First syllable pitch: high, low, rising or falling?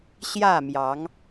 falling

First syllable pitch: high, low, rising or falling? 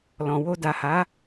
low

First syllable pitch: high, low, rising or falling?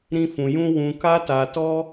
high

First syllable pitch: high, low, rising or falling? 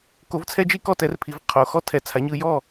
rising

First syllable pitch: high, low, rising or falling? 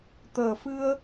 low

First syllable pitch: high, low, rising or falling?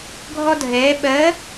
high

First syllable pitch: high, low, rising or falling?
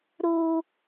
high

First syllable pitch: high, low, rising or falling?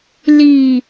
low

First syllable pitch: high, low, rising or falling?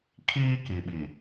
high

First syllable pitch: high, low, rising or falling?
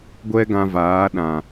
high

